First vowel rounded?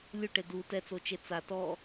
yes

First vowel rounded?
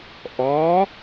yes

